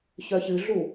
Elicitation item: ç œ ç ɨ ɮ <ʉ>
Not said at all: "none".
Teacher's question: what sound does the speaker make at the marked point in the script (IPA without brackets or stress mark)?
u